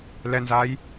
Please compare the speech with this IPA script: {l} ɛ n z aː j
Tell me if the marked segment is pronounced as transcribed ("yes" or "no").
yes